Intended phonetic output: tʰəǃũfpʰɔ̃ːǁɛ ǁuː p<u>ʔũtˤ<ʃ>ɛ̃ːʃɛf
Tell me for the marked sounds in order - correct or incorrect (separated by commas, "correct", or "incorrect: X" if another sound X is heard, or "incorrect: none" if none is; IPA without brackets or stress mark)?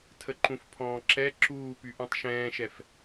incorrect: y, correct